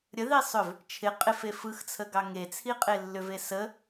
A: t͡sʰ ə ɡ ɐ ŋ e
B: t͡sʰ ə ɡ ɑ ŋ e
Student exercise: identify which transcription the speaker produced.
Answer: B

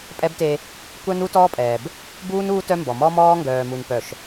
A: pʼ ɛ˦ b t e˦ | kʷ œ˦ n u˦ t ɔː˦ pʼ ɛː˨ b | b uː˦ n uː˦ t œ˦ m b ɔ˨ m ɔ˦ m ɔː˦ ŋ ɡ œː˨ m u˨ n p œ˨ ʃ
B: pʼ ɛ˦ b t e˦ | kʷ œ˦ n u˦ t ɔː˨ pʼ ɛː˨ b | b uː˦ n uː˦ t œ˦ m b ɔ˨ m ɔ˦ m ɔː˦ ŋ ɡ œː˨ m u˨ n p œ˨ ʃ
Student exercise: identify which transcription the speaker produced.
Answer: A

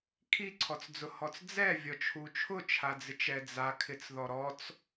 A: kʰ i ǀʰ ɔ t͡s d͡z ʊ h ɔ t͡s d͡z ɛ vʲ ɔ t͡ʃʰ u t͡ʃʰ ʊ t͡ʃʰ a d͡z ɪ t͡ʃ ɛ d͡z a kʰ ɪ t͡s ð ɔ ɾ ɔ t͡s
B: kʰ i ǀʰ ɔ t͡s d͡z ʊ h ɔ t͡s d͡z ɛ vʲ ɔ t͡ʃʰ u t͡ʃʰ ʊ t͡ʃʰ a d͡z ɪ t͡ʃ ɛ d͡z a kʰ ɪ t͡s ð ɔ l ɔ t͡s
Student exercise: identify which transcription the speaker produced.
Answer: A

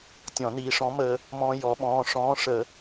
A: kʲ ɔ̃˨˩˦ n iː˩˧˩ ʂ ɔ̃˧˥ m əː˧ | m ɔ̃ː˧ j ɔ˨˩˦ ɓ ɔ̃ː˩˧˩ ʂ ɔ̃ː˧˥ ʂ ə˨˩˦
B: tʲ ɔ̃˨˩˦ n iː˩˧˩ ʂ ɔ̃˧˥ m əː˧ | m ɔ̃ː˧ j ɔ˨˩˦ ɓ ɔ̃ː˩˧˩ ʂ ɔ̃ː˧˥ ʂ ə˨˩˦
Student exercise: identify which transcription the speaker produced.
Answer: B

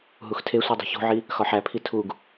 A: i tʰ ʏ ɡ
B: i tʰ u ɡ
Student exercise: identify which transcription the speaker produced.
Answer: B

